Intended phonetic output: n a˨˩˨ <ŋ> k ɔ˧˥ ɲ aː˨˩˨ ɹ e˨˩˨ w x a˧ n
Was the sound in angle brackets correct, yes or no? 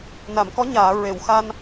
no